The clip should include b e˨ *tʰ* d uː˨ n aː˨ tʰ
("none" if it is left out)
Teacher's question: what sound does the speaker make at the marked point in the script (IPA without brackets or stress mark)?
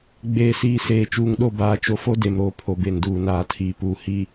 n